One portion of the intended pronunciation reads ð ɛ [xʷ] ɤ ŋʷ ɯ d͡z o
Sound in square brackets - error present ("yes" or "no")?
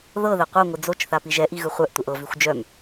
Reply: yes